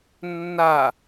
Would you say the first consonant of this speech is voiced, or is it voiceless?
voiced